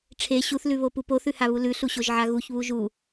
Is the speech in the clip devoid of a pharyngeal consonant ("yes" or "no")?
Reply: no